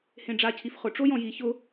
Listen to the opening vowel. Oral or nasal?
nasal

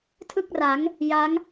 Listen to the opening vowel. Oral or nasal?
oral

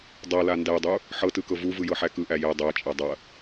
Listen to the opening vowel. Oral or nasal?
oral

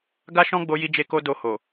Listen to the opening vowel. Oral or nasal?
oral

